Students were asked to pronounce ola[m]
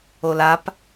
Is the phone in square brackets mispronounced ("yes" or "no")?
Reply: yes